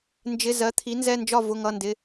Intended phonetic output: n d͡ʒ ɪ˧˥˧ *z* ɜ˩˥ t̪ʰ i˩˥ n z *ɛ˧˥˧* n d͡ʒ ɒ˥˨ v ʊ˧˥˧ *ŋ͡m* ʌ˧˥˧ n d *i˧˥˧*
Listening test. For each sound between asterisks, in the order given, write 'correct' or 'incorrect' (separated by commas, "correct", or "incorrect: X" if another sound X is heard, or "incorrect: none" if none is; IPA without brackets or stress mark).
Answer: correct, correct, incorrect: ŋ, incorrect: ɪ˧˥˧